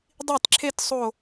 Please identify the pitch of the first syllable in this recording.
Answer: falling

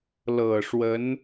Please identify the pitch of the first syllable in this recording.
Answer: low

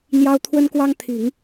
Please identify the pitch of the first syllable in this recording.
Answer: high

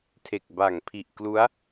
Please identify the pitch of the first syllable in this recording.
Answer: low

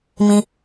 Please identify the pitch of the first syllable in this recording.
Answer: low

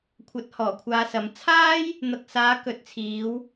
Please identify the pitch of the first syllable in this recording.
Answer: rising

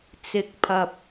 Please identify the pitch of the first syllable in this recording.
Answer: low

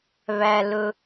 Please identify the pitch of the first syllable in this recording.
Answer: low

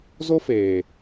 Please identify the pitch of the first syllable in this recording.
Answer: high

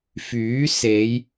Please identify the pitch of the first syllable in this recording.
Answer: rising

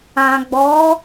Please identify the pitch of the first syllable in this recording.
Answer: low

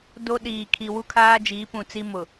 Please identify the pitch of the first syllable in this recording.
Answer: high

